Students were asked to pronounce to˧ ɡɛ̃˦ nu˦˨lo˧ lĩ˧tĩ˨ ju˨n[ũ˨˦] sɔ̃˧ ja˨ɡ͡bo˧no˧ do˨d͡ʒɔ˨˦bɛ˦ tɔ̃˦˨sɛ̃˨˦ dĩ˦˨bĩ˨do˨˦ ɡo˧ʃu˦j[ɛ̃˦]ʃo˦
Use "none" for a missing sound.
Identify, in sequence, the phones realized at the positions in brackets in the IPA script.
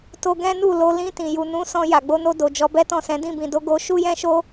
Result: ũ˨˦, ɛ̃˦

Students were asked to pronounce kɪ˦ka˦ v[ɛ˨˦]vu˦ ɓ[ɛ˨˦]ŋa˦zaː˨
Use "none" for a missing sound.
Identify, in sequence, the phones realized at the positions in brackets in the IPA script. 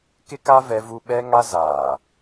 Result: ɛ˦, ɛ˦

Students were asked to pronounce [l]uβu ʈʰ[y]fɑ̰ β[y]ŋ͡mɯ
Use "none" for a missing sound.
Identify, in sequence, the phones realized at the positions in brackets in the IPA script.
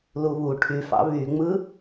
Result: l, y, y

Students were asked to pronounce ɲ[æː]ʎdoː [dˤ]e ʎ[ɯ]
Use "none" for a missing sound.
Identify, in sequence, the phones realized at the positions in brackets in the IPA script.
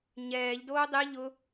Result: ɛː, dˤ, ʊ

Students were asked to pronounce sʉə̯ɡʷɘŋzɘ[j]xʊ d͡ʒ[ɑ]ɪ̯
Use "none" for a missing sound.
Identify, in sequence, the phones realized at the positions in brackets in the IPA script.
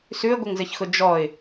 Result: ç, ɔ

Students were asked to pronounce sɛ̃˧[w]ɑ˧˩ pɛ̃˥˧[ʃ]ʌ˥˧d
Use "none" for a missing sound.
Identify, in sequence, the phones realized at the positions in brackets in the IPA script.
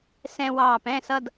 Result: w, s

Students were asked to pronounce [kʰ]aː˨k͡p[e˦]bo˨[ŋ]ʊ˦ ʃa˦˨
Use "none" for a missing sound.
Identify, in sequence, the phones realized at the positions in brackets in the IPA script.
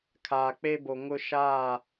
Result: kʰ, e˦, ŋ

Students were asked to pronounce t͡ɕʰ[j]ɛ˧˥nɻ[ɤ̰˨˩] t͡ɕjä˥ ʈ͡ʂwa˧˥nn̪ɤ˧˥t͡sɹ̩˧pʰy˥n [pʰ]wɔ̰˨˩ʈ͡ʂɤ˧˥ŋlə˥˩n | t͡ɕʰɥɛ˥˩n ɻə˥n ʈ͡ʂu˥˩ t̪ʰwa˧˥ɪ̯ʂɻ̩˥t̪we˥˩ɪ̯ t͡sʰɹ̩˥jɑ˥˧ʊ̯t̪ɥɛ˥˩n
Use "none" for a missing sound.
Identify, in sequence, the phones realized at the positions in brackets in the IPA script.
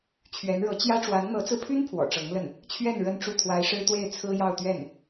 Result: ɥ, ɤ˧˥, pʰ

